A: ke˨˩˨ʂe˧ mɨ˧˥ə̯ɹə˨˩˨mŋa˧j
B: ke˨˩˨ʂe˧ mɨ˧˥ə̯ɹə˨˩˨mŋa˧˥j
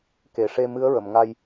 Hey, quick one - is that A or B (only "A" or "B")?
A